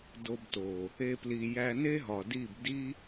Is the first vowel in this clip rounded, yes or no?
yes